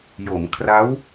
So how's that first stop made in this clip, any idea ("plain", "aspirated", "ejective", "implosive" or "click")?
aspirated